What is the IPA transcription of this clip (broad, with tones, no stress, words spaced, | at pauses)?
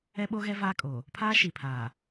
ɛ˦ɓo˦ɣɛ˦ vaː˦kʼoː˨ | pʰaː˦ ʃi˨pʰaː˨